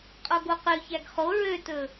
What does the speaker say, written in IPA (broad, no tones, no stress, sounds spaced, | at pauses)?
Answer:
qʼ o ɡ o q ʉ ç æ ɡ χ o ɹ ø t ɵ